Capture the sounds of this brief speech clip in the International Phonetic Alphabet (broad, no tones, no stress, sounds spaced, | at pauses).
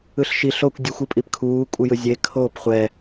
ɯ ɬ ʃ i ɬ o kʷ dʲ ɯ xʷ ɯ pʼ i p kʰ uː kʷʼ ɯ j ɯ zʲ e kʰ oː p χʷ ɛ